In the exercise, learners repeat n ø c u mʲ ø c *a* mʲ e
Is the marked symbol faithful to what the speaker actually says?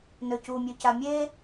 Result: yes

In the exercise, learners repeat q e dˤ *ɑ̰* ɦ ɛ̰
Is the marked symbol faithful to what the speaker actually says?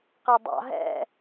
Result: yes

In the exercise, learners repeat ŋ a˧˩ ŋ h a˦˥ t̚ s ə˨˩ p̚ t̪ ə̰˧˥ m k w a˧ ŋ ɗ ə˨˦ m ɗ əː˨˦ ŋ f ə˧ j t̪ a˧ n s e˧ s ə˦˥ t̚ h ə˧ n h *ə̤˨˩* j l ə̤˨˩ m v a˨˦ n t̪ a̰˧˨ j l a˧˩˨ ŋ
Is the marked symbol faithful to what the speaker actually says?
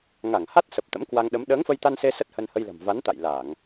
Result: no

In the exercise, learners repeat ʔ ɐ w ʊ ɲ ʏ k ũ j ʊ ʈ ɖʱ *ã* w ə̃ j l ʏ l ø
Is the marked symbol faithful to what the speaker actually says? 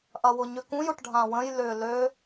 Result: yes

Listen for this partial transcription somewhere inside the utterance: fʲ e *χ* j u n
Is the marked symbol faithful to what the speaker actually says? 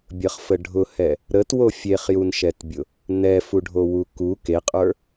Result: yes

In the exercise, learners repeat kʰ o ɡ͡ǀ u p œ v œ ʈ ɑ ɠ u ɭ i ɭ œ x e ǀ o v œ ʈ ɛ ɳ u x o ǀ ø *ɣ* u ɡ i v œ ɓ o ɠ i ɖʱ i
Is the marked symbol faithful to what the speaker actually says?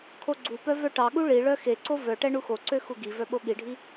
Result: no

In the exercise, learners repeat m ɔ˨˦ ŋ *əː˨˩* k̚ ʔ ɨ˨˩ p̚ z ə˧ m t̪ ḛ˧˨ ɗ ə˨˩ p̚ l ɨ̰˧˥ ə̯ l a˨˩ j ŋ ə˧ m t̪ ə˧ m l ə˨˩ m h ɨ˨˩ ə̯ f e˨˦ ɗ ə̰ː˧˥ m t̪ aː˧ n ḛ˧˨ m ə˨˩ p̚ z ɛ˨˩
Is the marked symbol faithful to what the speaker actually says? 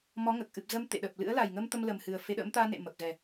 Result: yes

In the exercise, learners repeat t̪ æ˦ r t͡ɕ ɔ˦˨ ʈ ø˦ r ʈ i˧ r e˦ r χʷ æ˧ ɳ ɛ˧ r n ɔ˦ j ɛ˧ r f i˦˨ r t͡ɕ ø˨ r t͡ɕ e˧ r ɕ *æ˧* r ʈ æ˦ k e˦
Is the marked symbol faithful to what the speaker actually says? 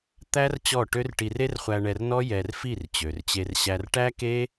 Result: yes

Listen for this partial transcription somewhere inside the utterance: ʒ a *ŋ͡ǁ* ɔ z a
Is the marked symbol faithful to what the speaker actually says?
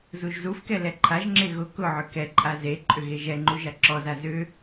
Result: no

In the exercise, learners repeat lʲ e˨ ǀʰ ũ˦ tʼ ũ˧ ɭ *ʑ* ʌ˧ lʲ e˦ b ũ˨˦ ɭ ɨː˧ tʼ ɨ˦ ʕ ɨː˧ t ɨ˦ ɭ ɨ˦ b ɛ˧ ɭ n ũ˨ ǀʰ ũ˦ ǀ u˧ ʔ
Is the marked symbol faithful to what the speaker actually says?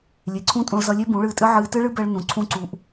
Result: no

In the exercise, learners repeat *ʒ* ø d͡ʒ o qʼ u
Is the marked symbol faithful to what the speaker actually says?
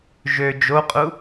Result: yes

